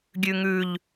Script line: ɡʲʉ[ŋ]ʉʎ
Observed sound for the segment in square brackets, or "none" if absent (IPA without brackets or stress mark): ŋ